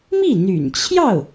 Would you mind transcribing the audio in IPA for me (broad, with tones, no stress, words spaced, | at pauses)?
mi˥˩n̪y̰˨˩nt͡ɕʰjɑ˥˩ʊ̯